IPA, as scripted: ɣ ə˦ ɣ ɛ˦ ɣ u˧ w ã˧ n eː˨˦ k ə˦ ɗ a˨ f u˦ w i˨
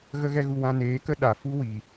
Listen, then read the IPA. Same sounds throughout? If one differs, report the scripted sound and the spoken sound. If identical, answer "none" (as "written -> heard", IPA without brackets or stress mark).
none